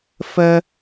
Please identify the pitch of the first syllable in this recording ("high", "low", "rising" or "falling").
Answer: high